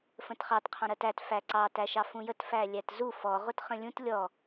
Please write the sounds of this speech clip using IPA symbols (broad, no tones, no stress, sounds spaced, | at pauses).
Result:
f ə̃ t χ ɑ t qʰ ɑ̃ ɾ ɜ t æ t f æ ǀ ɑ t æ ʃ ɑ f ũ j ə t f æ lʲ æ t z u f ɔ ʁ ʊ t χ ə̃ lʲ ũ t lʲ ɔ